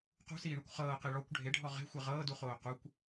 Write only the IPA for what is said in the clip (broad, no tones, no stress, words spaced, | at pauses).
qṳsiːɳukʷ χɤːqi ɭɔkʷ ɖʱeɖʱɔ ʁe̤xʷe ʁɤːduχoː qukʷ